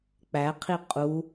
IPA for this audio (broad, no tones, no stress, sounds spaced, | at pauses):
k͡p æ qʰ i qʼ u